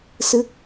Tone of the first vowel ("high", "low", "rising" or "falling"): falling